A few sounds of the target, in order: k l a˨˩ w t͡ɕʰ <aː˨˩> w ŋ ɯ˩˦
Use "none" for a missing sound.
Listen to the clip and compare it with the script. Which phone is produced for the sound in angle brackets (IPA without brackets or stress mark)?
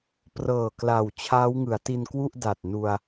aː˦˥